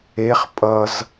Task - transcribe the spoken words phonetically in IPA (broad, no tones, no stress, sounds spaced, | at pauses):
e χ pʼ ʌ z